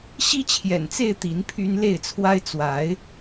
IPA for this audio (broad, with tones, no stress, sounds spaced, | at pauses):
ɕ i˦ t͡ɕʰ j ɛ̰˨˩ n t͡s e˥˨ ɪ̯ t̪ i˨˦ n pʰ y˦ n l e˥˨ ɪ̯ t͡sʰ w a˦ ɪ̯ t͡s w a˨˦ ɪ̯